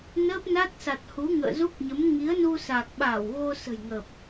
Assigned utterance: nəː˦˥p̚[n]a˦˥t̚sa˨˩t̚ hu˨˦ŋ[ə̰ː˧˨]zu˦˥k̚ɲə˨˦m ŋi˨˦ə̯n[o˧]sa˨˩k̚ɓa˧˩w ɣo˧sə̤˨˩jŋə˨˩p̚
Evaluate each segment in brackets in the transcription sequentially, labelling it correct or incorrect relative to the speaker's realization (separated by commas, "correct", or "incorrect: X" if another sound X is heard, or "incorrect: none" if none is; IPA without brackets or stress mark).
correct, correct, incorrect: u˧